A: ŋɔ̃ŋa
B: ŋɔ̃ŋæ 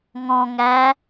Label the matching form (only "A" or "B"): B